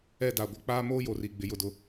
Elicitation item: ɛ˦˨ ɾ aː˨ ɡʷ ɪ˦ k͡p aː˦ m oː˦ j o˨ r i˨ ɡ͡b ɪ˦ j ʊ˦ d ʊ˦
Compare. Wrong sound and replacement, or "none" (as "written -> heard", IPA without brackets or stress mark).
ɾ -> d